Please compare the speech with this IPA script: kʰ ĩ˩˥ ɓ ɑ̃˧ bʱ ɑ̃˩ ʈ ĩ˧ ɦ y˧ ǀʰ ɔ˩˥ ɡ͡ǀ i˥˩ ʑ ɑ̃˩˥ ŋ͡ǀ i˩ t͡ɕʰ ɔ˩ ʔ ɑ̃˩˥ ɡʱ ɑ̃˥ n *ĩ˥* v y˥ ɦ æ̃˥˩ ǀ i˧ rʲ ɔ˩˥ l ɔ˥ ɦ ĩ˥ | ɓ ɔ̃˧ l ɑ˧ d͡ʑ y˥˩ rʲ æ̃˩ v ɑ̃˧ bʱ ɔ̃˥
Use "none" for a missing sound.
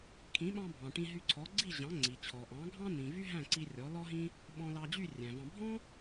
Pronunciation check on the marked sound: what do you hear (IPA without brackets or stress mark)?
ĩ˩